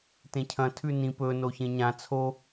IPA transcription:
t ẽ cʰ ɐ̃ tʰ ʉ n ĩ p ɵ n o ç ẽ ɲ ã t͡sʰ o

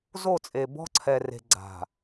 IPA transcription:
z o˦˨ t͡sʼ e˨ b ɔ̤˦ ǀʰ ɛ˨ r e̤˨ ɡ͡ǀ a̤˨

